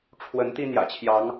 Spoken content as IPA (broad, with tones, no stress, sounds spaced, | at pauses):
ʈ͡ʂʰ w ə˨˦ n t̪ i˦ n̪ j ä̰˨˩ t͡ɕʰ j ɑ˨˦ ŋ